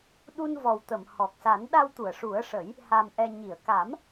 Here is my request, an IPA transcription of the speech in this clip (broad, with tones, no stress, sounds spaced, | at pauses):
ɗ u˧ n v ɔ˨˩ w t̪ ə˨˩˨ m h ɔ˨˩ k̚ s a˨˩˦ n ɗ a˧ w t̪ u˨˩˨ ə̯ ʂ u˨˩˦ ə̯ ʂ ə˨˩˦ j | h a˨˩ m ʔ ɛ˨˩ ɲ i˨˩˨ ə̯ k a˨˩˦ m